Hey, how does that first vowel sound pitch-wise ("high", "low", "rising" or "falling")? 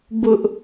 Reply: high